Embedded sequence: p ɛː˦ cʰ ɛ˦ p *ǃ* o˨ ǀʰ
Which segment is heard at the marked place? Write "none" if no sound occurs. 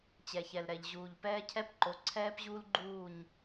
ǃ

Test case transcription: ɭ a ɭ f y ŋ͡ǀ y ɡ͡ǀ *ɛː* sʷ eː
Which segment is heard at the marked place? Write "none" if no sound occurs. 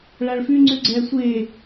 ɛː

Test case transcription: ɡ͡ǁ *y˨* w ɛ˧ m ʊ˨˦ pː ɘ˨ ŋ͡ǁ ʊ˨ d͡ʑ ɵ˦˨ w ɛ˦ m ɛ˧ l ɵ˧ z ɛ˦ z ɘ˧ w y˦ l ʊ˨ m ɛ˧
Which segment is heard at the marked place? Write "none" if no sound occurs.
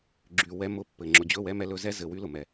y˨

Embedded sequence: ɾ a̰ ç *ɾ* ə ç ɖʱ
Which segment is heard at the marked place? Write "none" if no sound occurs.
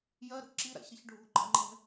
ɾ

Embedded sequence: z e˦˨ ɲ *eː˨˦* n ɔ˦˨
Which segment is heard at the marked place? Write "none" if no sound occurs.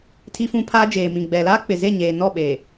eː˨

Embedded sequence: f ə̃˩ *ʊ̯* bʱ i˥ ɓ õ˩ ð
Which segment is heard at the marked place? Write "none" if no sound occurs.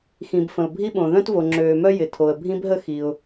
ʊ̯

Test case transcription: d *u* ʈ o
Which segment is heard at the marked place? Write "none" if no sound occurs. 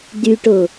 y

